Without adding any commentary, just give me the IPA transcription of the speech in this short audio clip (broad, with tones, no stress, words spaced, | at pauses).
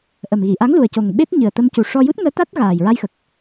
ʔə˨˩mɣi˨˩˨ʔa˧˥ŋ lu˨˩ə̯co˨˩ŋ ɓe˦˥t̚ɲɨ˨˩ə̯t̪ə˧m cu˨˩ʂɔ˧ ju˦˥t̚ŋəː˧˥t̪a˦˥t̚ ɣaː˨˩jɹa˧jxə˨˩k̚